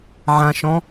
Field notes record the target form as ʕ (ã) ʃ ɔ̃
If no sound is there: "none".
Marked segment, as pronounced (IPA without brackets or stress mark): ã